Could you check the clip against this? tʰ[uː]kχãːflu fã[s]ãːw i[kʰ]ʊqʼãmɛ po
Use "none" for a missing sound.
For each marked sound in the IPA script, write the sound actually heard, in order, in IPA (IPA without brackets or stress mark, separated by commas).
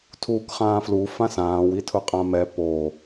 uː, s, tʰ